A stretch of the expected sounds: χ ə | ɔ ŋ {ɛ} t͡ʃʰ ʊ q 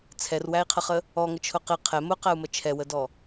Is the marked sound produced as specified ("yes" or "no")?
no